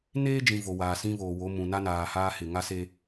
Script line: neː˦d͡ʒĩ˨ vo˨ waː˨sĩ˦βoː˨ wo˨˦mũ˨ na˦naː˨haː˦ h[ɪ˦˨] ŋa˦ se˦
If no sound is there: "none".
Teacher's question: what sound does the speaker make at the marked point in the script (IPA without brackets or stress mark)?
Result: ɪ˦˨